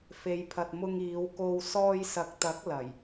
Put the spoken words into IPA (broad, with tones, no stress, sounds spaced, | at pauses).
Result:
f e˨˧ j pʰ ɐ˨ t̚ m ʊ˧ ŋ iː˨˧ w k o˧ w s ɔː˧ j s ɐ˨ k̚ t̪ ɐ˨˥ k̚ l ɐ˨˩ j